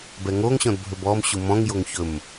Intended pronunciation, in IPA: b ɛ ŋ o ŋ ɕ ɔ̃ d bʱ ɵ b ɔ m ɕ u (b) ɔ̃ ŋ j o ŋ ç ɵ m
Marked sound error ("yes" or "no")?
yes